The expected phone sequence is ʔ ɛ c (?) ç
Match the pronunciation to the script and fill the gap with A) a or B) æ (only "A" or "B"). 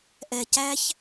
B